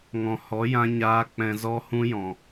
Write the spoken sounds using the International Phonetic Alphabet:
ŋɔ̃˨hɔ˨˦jã˧ɲaː˧ k͡pɛ̃˧zɔ˦hũ˦ jɔ̃˨

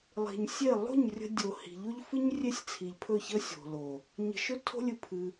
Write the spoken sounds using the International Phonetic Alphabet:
lˠi̤˨ɲsʲe˦˨ lˠo̤˦˨ɲrʲə̤˧ dʲo˨ hi̤˨ʎo˦ʎfɨ˦ɲ rʲe˦sʲt͡sʰi˨ʎpʰɵ˦˨çə˦ sʲo̤˨lo˨ | ɲə̤˧ʃɵ˦tʰo̤˦lʲɨ˧ pʰɨ˧

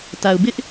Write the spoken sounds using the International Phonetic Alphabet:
ta˨ʊ̯ bɪ˦ʔ

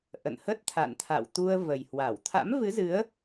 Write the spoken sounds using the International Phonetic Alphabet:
ʔə̰˧˨nhə˦˥t̚ t̪ʰa̰˧˨nt̪ʰa̰˧˨wt̪u˧ə̯ və˨˩jhwa˧˩w t̪ʰa̰˧˥mvɨ˨˦zɨ˨˦ə̯

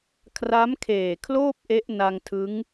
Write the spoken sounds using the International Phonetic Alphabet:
kʰra˦˥mkʰeː˨˩kʰloː˥˩p̚ ʔe˦˥ʔna˧ŋtʰɯ˦˥ŋ

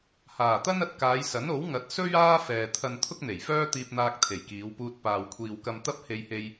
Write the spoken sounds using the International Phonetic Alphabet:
haː˨˩t̪ɐ˥n ɐ˧t̚kaː˨˧jsɐ˨˥n o˨˥w ŋɐ˨˥t̚ sɵ˥ɥ aː˥fɛː˨ t̪ʰɐ˨n t̪ʰʊ˥k̚n̪e˨˩jfœː˥ t̪iː˧p̚n̪aː˧k̚ t̪ʰe˨˩jkiː˨˧wpuː˧t̚ paː˨wkʷʰiː˨wkɐ˧m t̪ɐ˥p̚he˧jhe˧j

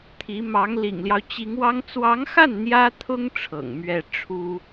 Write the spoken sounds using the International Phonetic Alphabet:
t̪ʰi˧˥ mɑ˧˥ŋ lḭ˨˩ŋljɑ˦ʊ̯t͡ɕi˧˥ŋwɑ˥ŋ t͡swɑ˧˥ŋxa˥˩n n̪jä˥t̪ʰʊ˥ŋ ʈ͡ʂʰɤ̰˨˩ŋ mɥɛ˥˩ ʈ͡ʂʰu˥

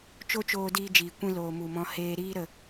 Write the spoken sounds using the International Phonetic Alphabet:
t͡ʃo˦t͡ʃoː˧diː˧ d͡ʒiː˨kʷĩ˧loː˨ mu˨mɔ̃˧ heː˧ɾiː˦ ɾə˨

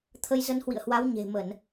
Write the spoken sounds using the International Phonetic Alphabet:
t̪ʰə˧jzə˧nhwḭ˧˨ə̯hwa˨˦w ɲe̤˨˩ mə˧˩˨n

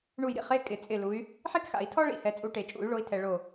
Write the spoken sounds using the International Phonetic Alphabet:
ɳu˦˨jɾḭ˥χe˧˥˧ kʼɪ˨˦t͡sʼɪ˦˨ lu˨˦y̯ | ħe˥kxa̰˨˩˦i̯tʰɔ˥ ɭḭ˧˥˧hɛ˨˦t͡sʼu˨˦ʈe˨˩˦ t͡ʃʼṵ˨˩˦y̯ɭo˨˦i̯tʰɛ˨ ɭo˦˨

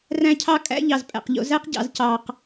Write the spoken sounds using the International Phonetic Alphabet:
ræ̃˦cʰɑ˦kʼæ̰˦ ʎɑ˨zpʼæ̰˨qʎo̰˨˦ zæ˦qɟɑ̰˨z cɑ˨q

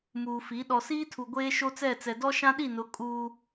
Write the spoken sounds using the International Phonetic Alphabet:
muː˨fi˨˦ ɗɔ˨siː˦tʰu˨ ɡʷeː˦ʃo˦t͡sɛ˦˨t͡sɛ˨ dɔ˦ʃã˦ɗi˦˨nʊ˨˦ kʼuː˦

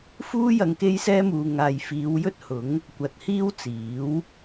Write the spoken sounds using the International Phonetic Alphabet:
fuː˥jɐ˧ŋ ke˥jsɛː˥muː˧ ŋaː˨j fiː˨˧w jɵ˥t̚hʊ˨˥ŋ | kʷɐ˧t̚hiː˥wt͡siː˨˥w

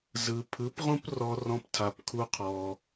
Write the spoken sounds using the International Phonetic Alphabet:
zɯ˧ pʰɯ˨˦pʁũ˦prɔ˧rɔ̃˧p tʰa˧pkʰu˦qʰɔ˧

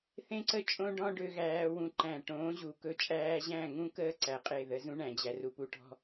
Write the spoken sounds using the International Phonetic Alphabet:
θẽ˦ǀə˦ t͡ʃʼõ˦ ɖɔ̃˦ɖø˧ ɣæː˧wũ˧ ǃæ̃˨ʈõː˨˦ ʑu˨kɵ˧ t͡ʃʼæː˧ʑæ̃˦˨ŋũ˦kəː˦ ǀæ˨qʼe˦˨ ðə˨˦zũ˦ɳæ̃˨d͡ʑæ˨ ru˨pu˧ʈɔ̤˧

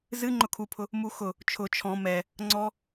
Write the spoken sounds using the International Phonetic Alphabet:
zɨ ŋ͡ǃʊkʰupʰʊ | muxʊ | t͡ʃʰʊ t͡ʃʰɔ̃ mɛ | ŋ͡ǀɔ

